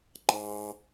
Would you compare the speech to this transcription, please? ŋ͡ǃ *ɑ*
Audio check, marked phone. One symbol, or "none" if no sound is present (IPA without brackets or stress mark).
ɑ